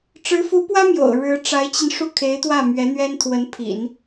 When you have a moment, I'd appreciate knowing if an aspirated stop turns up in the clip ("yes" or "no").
yes